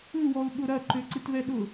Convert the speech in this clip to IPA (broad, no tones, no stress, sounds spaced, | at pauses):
ɨ w ɔ ʊ̯ ɠ ʊ ɾ ɐ ǃ ø ǀ ɨ t v ɛ ɗ ʊ